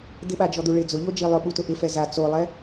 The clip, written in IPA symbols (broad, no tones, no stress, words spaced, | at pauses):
d̪ɪɓad͡ʒɔd̪u ɭɪ d͡zʊʎod͡ʒi lˠʊɓutʊ ʔɪfɛ za t͡solˠɛ